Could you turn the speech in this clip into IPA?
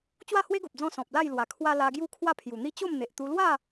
t͡ɕ w a˥˧ h w e˦ ɡ o˨ p̚ d͡z ɔ̃˧ s ɔ̃˨ p̚ l a˥˧ j l w a˨˩ kʰ w a˧ l a˧ ɡ j u˦ kʰ w a˥˧ pʰ j u˨˩ n̪ i˥˧ t͡ɕ o˥˧ m n̪ e˨ ʔ t̪ u˧ l w a˥˧

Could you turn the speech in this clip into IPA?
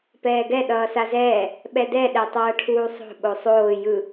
p ɛː ɡ ɛ ɗ ʌː s a z ɛː | ɓ ɛ d ɛ ɗ ɛ tˤ ʌː ʈʰ uː sˤ o̤ ɓ o sˤ oː j ɯ

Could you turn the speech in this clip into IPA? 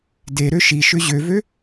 d e ɾ ø ʃ i ʃ ʏ ʑ ø v ø

